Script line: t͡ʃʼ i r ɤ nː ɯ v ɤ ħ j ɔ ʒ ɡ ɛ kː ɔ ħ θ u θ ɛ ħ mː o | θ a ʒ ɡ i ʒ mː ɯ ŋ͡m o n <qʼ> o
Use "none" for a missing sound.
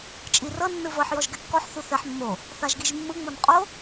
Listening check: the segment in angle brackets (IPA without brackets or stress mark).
qʼ